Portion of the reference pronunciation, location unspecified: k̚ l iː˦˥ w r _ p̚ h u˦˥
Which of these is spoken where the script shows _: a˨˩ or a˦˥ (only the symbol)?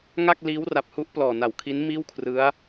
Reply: a˨˩